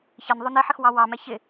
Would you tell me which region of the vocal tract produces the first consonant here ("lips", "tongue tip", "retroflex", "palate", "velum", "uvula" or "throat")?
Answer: palate